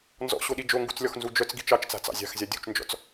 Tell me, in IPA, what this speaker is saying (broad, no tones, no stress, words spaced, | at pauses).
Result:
nzɔ̰ɕoɗi d͡ʒoŋɡṳt͡slʲɔxnzu d͡ʒœt͡sɡi̤ t͡ʃɑt͡ʃt͡sa̤t͡sɑ̰ zʲa̤xzʲa dʲṳt͡ʃnd͡ʒɔ̰t͡s